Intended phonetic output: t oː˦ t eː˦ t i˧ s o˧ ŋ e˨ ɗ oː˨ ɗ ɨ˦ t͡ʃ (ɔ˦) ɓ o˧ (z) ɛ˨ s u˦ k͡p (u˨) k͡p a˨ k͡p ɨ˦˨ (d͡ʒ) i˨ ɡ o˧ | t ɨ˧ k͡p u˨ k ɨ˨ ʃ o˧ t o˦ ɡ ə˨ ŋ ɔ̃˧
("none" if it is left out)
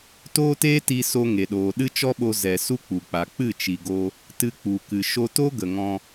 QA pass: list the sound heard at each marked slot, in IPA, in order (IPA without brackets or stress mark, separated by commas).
ɔ˦, z, u˨, t͡ʃ